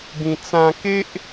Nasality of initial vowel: nasal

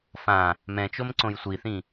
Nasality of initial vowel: nasal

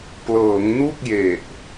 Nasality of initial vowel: oral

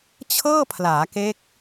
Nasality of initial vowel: oral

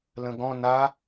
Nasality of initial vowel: nasal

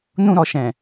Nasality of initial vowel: nasal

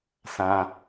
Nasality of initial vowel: nasal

